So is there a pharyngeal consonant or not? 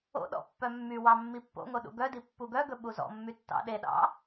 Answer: no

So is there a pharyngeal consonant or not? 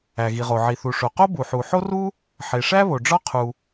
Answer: yes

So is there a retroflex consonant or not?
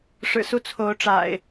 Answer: yes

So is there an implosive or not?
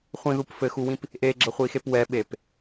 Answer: yes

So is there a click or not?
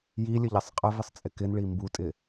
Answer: no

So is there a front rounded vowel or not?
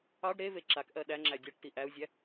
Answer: no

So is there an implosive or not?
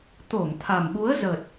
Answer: yes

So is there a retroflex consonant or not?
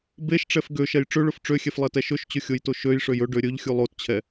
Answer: yes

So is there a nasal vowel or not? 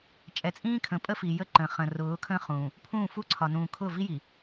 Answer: yes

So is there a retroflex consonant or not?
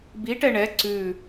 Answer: yes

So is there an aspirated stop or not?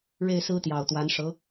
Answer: no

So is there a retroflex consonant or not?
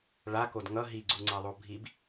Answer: yes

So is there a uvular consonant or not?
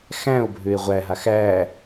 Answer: yes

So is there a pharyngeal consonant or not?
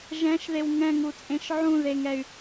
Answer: yes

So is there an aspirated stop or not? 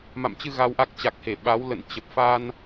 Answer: no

